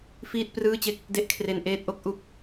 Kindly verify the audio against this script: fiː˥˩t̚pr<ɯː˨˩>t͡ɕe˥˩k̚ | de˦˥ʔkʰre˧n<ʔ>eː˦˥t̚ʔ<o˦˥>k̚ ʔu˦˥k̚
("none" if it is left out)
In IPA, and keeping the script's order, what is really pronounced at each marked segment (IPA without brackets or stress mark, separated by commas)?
ɯː˥˩, ʔ, o˦˥